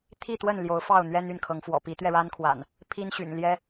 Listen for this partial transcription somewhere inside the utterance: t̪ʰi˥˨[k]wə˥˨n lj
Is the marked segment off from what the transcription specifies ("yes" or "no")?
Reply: yes